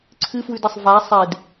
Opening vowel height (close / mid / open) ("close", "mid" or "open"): close